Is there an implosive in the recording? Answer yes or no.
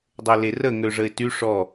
no